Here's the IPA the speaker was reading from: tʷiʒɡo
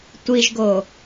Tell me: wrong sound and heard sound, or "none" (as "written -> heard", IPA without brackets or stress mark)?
none